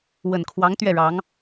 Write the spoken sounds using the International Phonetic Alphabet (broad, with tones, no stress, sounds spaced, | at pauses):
w ə˨˩ n kʰ w ɑ˧˥ ŋ t̪ ɥ ɛ˥˩ ɻ ɑ˧˥ ŋ